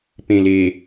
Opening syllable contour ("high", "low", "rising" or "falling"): low